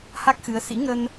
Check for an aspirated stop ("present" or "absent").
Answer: absent